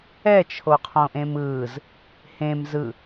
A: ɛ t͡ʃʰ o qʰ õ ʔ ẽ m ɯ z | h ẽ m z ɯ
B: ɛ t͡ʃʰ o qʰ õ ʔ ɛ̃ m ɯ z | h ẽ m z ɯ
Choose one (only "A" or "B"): A